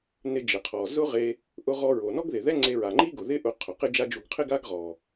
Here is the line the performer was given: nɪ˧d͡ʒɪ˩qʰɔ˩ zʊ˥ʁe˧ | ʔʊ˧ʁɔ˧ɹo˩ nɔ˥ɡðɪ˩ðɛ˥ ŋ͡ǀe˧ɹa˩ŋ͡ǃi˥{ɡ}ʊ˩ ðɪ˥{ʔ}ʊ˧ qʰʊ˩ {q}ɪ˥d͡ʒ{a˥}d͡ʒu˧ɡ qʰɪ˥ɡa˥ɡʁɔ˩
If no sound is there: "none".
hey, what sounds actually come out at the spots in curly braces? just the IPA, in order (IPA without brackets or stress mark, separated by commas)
ɡ, ʔ, q, a˥